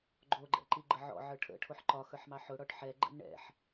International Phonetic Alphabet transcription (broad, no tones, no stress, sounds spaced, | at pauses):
ɡ͡ǃ o ɡ͡ǃ ɛ̰ ǃ i ɡ͡ǃ ə ʕ ɔ̰ ʕ ə˞ ʈʰ ə̰ ʈʰ o ħ ǃ ɒ x ə˞ ħ m ɑ ħ ʊ ɽ ɔ ʈ ħ ɛ ɡ͡ǃ ə̰ n ɳ ɛ̰ ħ